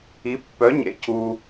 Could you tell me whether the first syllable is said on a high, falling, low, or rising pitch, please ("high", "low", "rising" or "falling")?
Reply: rising